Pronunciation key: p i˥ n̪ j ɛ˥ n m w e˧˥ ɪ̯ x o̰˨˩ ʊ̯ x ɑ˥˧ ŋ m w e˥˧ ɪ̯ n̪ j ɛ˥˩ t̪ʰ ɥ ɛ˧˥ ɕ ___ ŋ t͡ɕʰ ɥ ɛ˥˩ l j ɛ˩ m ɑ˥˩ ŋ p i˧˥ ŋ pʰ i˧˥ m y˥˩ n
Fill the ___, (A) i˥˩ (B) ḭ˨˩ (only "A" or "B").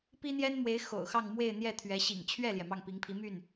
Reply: B